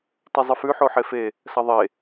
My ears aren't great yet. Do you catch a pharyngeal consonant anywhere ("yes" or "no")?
yes